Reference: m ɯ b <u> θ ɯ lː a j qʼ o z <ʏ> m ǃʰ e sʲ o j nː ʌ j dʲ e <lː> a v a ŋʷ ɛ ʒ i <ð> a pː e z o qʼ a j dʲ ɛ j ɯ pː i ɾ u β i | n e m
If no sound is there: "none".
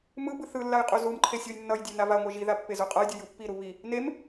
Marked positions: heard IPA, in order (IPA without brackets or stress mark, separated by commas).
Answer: ɯ, u, n, ð